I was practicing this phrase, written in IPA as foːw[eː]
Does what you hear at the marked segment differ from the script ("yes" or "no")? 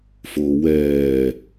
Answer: yes